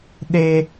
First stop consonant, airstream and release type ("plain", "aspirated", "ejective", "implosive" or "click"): implosive